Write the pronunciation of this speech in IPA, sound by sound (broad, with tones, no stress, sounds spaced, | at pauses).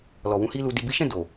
l ɔ˨ w ũ˨˦ h i˦ l u˧ d i˨ b i˨˦ ʃ ɛ̃˦˨ d o˨